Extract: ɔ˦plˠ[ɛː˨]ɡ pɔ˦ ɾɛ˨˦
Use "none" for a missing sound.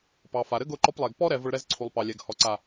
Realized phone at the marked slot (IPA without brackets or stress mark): ɛ˨